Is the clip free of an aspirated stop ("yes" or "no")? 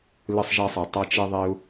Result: yes